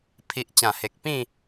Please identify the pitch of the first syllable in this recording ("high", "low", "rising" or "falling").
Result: low